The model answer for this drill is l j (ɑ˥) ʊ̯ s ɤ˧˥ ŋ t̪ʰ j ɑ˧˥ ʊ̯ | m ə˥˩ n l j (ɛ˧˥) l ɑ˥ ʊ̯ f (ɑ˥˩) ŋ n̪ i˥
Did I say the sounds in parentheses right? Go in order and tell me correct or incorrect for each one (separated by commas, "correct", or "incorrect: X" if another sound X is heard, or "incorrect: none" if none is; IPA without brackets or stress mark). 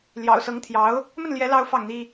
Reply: incorrect: ɑ̰˨˩, correct, correct